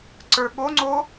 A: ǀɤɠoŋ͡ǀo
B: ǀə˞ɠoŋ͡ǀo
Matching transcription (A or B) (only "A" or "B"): B